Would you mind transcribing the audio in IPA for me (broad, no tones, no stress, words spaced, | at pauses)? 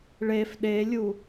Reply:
ɭef ɗelʲu